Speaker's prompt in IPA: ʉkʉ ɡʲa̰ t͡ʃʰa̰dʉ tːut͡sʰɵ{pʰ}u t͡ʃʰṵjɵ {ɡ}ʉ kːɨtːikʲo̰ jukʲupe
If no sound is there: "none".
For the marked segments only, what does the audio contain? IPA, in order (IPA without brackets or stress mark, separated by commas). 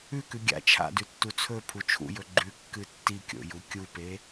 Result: pʰ, ɡ͡ǃ